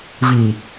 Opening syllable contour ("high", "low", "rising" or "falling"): low